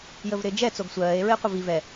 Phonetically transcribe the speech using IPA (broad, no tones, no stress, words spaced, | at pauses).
jəvɾɪːd͡ʒɛ t͡soɡsʷɜːe̯ ɹɪːqʷɪvi vɛ